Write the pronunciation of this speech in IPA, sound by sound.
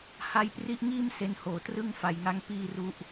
ha˦˥jpri˦˥ʔŋiː˥˩m se˧nhoː˨˩trɯ˥˩ŋ fa˨˩jŋa˧ŋ piː˥˩ru˥˩ʔ

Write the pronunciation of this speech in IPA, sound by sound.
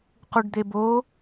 quɖd̪ebo

